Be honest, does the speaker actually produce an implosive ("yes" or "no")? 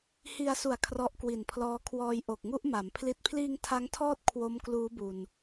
no